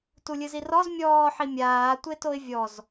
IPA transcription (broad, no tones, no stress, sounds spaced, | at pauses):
t u lʲ ɨ z i r ɔ z mʲ ɔː ħ i mʲ aː tʷ e t o ɪ̯ vʲ ɔ z